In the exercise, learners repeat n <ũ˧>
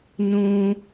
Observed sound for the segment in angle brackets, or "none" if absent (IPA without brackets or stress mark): ũ˧